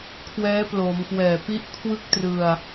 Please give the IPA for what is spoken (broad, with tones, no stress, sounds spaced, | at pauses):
kʰ w ɛː˦˥ p l o˩˦ m k w ɛː˨˩ p i˥˩ ʔ kʰ w ɯ˥˩ k̚ t r ɯ˧ a̯